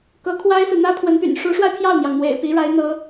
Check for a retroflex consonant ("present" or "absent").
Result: present